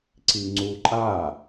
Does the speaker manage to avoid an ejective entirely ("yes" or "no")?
no